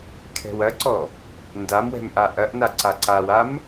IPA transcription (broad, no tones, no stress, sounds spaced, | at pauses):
kʰ ɛ̤ w ɐ ǀ ɔ | n d a m w ɛ̤ m ʔ a ʔ ɐ ʔ n a ǀ a ǀ a w a m